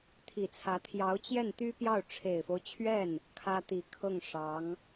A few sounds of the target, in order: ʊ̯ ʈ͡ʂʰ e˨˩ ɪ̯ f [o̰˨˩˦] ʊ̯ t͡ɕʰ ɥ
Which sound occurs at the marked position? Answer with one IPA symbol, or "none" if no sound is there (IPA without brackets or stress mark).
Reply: o˦